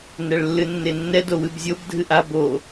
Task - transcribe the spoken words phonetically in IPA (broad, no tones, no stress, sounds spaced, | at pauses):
n ɛ ɭ lː ɨ nː e nː ɛ d o w ɨ b zʲ o b dʱ ɨ ʔ a b o